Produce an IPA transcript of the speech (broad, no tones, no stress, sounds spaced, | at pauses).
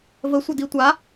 v ə sʷ œ d i tʷ a